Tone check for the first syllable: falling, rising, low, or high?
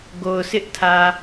low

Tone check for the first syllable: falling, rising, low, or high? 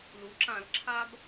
rising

